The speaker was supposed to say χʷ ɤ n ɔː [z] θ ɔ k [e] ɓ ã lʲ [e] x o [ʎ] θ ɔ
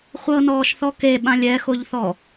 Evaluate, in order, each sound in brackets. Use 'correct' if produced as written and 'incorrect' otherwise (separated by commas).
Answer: incorrect, correct, incorrect, correct